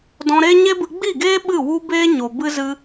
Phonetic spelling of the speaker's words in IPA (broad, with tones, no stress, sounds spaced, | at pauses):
d ɔ̃˧ ɾ e˦ ɲ e˦ b ɨ˧ ɡ͡b i˦˨ ɡ eː˦ ɓ ɨ˦˨ w u˦ b eː˦ ɲ o˨ b ɨ˦ z ɨ˦